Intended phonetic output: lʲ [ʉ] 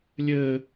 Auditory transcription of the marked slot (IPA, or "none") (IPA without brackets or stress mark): ɘ